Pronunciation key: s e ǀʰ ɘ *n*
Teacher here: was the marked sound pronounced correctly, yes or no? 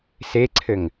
no